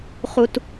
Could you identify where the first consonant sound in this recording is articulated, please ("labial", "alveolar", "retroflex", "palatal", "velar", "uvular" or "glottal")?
uvular